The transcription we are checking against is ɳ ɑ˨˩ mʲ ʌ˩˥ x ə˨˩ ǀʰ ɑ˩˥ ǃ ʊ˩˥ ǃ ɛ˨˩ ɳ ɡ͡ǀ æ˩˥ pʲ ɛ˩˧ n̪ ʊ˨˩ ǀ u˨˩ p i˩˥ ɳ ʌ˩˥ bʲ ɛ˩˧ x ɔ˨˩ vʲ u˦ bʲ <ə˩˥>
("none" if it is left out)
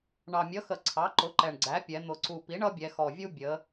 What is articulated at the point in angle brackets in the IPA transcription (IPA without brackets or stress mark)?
ə˩˧